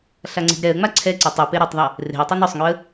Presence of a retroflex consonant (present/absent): absent